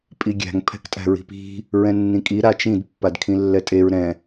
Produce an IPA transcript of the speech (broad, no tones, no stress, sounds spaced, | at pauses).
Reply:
pʼ i ɡʲ æ̤ ŋ pʰ ɛ̤ k tʼ æ̤ ɹ i̤ p i̤ | ɹ ɛ̃ nː ĩ kʼ i ɾ a t͡ʃ ĩ d pː a d kʰ ĩ lː ɛ tʼ e ɹ ɾ ɛ̃